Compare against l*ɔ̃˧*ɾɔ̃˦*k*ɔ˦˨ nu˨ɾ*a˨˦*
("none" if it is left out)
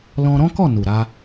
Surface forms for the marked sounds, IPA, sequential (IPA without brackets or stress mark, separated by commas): ɔ̃˧, k, a˧